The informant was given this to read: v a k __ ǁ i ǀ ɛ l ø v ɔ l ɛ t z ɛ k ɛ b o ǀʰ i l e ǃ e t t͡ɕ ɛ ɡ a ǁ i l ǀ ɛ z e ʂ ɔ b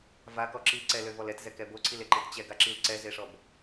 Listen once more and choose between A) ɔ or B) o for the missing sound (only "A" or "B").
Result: A